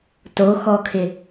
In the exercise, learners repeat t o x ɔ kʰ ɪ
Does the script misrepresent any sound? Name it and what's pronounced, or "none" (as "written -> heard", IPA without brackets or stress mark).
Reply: none